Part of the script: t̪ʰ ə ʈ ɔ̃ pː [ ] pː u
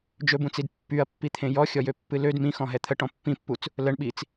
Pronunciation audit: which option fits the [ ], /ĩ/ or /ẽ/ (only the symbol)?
ĩ